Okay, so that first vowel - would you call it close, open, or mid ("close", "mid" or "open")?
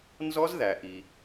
mid